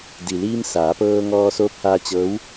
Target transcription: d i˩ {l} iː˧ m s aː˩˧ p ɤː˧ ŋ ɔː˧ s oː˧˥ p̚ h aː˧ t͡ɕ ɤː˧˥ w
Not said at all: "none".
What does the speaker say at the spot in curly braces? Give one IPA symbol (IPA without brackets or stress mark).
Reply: l